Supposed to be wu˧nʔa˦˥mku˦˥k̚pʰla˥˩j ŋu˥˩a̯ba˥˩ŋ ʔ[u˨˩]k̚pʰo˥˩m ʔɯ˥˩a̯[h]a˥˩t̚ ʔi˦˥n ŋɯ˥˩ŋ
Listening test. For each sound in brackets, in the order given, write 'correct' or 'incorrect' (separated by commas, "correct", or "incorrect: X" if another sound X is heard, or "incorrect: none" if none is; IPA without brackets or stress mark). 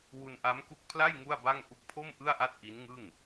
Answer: incorrect: u˦˥, incorrect: ʔ